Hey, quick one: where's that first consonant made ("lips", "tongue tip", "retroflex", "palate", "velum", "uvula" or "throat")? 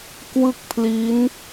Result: velum